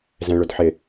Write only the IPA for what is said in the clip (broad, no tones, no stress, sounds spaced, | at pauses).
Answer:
z ɛ̃ ɭ ʊ d ħ ɪ